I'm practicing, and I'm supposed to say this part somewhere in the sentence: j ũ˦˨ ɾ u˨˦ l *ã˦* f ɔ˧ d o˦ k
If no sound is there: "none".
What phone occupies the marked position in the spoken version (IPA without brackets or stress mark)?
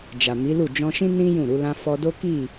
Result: ã˦